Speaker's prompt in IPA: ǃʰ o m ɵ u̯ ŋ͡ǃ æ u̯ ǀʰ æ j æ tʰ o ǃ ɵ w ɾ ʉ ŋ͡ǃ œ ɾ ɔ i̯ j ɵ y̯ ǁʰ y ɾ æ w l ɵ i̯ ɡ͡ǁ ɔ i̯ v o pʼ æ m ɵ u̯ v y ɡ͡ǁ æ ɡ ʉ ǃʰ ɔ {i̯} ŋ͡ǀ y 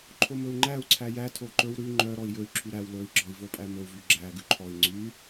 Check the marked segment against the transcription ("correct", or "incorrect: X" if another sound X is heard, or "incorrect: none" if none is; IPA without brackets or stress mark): correct